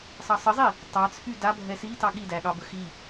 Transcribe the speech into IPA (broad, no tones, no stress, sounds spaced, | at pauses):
sˤ ɑ sˤ ə zˤ i | tˤ ɑ t͡sʰ y d a bʱ ɛ s i t ɑ ɠ i d æ ɠ ɑ b ə x i